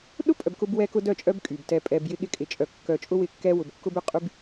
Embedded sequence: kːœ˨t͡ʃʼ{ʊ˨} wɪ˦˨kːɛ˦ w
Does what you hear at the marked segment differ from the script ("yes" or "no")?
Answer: yes